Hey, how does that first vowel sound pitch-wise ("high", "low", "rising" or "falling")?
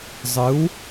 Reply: rising